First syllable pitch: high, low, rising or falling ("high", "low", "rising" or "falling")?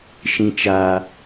low